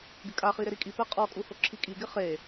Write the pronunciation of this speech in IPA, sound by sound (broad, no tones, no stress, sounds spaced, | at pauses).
ɡ ɪ kʼ a χ i ɾ ɪ ɾ i kʼ i p ɛ qʼ ɔ kʼ u h o ǁʰ i kʼ i ɡ ɪ χ e